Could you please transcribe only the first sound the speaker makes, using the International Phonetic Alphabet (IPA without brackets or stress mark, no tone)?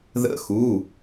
ð